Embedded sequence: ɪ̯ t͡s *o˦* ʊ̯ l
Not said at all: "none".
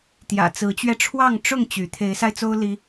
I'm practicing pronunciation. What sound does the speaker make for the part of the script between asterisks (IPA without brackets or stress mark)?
o˦